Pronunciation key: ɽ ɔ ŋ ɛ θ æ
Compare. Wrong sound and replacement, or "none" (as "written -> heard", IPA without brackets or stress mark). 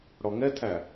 θ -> tʰ